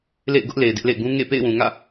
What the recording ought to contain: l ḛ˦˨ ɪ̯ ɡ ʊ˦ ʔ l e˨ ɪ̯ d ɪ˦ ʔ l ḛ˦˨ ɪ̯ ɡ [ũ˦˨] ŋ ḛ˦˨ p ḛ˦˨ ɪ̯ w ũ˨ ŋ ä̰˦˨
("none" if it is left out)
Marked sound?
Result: ũ˦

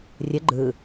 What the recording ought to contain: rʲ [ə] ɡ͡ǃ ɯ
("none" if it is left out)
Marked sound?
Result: ə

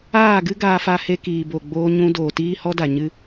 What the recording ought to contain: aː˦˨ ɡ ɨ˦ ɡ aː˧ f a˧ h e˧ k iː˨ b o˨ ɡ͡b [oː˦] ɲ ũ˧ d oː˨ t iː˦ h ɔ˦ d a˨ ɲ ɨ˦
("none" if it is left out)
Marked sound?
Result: oː˧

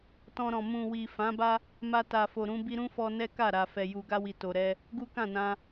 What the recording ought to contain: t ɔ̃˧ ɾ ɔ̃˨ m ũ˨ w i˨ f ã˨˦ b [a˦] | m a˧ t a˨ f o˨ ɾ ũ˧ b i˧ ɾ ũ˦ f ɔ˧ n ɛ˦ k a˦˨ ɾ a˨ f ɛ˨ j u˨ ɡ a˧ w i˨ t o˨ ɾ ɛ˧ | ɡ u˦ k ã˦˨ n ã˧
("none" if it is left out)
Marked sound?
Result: a˦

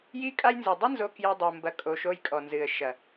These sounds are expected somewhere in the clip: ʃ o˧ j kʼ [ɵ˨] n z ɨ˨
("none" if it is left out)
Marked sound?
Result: ɔ˨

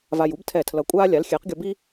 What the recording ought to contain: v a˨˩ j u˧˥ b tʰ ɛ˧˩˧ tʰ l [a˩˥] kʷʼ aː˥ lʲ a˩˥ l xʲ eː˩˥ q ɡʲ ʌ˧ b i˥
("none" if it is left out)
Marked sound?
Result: ʌ˩˥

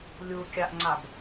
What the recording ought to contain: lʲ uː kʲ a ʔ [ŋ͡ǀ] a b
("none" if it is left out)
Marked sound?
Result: ŋ͡ǀ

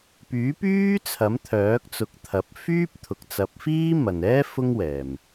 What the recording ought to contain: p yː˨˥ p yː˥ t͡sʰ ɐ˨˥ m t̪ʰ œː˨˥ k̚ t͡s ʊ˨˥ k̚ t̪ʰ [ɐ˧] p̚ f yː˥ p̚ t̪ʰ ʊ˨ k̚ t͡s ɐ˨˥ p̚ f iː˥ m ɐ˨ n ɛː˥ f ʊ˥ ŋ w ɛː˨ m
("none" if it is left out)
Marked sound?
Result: ɐ˨˥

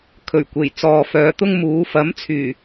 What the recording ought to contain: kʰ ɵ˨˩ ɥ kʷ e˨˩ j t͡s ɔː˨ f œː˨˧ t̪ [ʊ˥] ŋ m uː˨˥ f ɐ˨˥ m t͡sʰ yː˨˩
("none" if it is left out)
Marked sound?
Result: ʊ˥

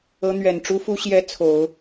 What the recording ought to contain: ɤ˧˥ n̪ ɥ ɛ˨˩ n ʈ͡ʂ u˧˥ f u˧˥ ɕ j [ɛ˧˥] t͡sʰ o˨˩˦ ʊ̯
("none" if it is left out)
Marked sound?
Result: ɛ˧˥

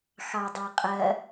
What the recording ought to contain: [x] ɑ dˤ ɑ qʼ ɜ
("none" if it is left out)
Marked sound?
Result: x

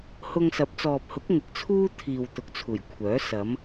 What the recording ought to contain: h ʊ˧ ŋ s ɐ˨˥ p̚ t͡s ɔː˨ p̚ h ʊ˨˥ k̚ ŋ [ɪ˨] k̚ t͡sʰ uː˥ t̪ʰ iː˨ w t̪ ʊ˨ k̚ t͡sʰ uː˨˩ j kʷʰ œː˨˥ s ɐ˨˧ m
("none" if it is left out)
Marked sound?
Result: ɪ˨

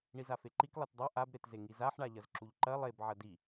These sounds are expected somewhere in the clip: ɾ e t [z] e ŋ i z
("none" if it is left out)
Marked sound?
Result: z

